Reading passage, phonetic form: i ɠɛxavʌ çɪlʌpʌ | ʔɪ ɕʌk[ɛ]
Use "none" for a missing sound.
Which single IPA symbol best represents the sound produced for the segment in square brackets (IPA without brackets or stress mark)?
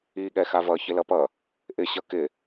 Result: ɪ